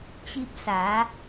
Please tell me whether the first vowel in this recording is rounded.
no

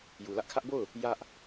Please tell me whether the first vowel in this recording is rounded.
yes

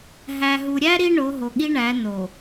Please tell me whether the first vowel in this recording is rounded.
no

